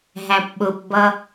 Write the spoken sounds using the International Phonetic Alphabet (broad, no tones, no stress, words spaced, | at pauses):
ɦæpɓʊpbʌ